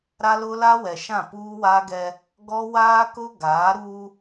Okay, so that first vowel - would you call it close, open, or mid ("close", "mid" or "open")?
open